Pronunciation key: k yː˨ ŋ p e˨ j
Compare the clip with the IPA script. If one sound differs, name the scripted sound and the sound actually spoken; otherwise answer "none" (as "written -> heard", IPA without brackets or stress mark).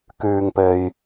none